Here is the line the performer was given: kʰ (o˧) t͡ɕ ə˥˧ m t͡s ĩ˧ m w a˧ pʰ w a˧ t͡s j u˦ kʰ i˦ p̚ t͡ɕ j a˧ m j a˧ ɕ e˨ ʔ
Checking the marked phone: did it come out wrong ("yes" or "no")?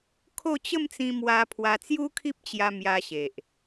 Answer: yes